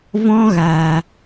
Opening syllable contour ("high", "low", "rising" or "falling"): high